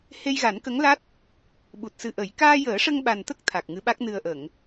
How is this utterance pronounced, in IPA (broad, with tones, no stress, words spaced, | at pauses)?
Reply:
he˧jɣa˨˩˦nkə˧˥ŋla˦˥t̚ | ɓu˨˩t̚sɨ˨˩ ʔə˨˩˦j kaː˧jəː˨˩˦ʂə˧ŋɓa˨˩n t̪ə˦˥k̚ t̪ʰa˨˩k̚ ŋɨ˧˥ɓa˦˥k̚ nɨ˨˩ə̯ʔə˨˩˨ŋ